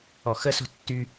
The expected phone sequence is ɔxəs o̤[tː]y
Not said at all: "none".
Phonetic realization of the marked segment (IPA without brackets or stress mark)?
tː